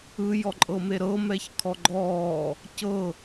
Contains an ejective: yes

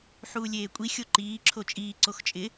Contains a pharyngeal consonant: yes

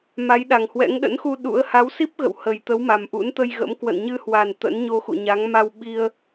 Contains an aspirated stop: no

